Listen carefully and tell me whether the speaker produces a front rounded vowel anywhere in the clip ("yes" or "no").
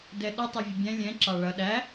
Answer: no